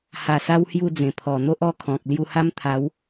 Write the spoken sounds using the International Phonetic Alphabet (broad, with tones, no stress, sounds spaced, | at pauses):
h a˨˩ s a˦ w h j u˥˧ d͡z ẽ˨˩ pʰ ɔ˨˩ n̪ o˦ ʔ ɔ˥˧ kʰ ɔ̃˨ k̚ l j u˧ h a˦ m t̪ʰ a˨˦ w